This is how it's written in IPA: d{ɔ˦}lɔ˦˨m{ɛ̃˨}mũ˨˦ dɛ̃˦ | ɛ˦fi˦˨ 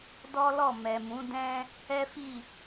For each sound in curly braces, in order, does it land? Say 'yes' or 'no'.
yes, no

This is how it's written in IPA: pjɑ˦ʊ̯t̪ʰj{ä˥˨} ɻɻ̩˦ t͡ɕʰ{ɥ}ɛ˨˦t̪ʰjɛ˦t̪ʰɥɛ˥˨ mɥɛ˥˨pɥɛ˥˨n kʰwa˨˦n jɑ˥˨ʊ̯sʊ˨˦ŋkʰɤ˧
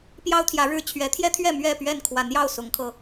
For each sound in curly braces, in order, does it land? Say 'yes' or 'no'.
no, yes

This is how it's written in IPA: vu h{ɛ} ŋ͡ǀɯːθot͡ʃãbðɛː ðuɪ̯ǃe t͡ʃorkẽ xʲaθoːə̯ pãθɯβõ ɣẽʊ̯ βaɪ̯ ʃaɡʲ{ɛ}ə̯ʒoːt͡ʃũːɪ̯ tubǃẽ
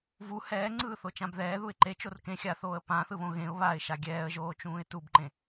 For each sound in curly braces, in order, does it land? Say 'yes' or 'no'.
no, no

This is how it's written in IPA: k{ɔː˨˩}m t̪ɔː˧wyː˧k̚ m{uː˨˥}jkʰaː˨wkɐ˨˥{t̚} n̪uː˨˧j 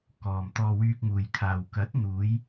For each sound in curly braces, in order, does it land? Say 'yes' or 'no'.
no, no, yes

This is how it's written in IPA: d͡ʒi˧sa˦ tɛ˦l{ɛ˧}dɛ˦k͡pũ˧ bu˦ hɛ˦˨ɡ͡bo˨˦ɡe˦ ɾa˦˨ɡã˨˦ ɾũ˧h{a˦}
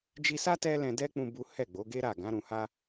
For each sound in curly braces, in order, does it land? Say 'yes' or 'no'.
no, yes

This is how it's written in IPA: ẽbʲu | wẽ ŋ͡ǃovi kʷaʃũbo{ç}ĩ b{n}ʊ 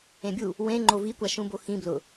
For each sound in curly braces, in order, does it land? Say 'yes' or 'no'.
no, no

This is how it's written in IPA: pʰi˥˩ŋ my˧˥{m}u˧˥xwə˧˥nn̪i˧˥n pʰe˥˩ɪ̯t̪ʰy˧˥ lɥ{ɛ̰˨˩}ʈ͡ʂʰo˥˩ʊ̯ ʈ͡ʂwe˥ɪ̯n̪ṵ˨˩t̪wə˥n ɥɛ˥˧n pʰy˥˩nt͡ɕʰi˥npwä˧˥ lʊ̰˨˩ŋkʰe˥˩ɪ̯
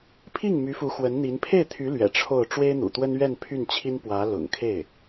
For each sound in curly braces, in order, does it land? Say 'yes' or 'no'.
no, yes

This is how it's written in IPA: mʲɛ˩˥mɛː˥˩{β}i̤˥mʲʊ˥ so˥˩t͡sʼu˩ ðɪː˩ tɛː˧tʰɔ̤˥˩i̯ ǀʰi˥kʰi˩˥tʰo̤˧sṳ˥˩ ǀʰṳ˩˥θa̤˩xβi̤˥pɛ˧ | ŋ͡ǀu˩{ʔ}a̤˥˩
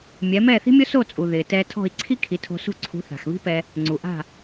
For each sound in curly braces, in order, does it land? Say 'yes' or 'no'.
no, yes

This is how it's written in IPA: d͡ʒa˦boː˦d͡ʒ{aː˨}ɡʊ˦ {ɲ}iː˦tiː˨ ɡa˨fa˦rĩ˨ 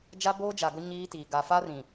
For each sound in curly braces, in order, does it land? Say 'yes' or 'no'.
no, yes

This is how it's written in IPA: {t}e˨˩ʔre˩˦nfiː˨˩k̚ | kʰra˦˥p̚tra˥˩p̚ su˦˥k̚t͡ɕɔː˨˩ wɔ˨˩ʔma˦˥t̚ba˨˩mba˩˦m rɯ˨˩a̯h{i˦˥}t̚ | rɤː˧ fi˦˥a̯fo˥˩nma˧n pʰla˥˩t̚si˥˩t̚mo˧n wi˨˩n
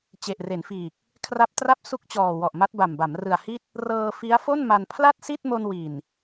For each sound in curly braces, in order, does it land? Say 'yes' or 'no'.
no, no

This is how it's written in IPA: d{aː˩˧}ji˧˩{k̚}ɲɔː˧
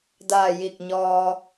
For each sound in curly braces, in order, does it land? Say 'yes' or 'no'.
no, yes

